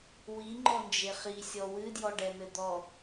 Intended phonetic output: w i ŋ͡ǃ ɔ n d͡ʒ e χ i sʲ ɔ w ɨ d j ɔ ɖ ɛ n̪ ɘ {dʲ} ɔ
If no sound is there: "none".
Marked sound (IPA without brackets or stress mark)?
d̪